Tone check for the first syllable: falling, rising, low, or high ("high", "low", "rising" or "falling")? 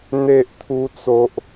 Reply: high